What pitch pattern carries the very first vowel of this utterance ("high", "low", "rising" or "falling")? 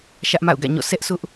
high